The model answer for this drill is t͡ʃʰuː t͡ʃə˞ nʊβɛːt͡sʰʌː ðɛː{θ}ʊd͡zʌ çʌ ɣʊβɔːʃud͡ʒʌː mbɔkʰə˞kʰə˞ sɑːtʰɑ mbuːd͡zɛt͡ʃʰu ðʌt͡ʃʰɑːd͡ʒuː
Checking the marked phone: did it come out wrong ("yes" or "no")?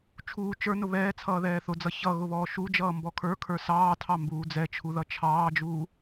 no